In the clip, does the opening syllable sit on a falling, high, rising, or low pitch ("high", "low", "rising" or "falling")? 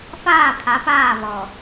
falling